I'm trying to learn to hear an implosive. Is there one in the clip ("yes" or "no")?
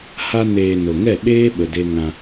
yes